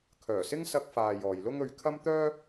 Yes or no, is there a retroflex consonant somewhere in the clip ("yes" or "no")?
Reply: no